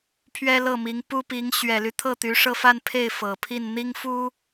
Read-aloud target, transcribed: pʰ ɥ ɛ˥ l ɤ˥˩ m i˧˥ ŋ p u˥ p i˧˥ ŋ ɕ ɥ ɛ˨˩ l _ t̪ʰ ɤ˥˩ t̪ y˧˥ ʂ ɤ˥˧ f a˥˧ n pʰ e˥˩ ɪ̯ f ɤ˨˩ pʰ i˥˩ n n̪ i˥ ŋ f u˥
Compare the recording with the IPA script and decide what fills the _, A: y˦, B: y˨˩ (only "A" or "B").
A